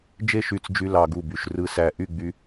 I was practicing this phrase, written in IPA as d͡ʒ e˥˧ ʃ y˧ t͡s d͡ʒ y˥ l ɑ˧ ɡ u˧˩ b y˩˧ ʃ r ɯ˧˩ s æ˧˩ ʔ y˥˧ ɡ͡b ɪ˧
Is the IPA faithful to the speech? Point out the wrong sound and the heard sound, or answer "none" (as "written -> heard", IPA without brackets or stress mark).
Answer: ɪ˧ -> y˧